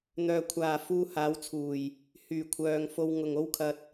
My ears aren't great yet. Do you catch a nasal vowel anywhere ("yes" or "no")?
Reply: no